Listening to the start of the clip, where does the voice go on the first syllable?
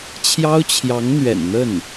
high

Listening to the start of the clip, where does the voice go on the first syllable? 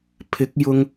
rising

